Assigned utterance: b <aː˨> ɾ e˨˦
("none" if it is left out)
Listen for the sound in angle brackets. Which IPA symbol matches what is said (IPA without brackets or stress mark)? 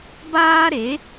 aː˦